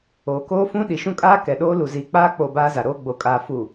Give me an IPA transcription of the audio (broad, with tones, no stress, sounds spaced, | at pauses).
oː˨ k oː˦ f ũ˦ ɗ i˨ ʃ ũ˦ kʼ aː˦ k ɛ˨ ɗ oː˦ l u˨ z iː˨ k͡p aː˦ k͡p o˦˨ b aː˦ z a˨ ɾ oː˦ ɡ͡b o˨ kʼ aː˨ f u˨